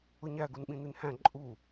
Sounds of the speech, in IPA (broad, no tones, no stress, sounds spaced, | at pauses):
ʊ ɲ æ ɡ u n ɓ ĩ n i n h æ̃ ǃʼ u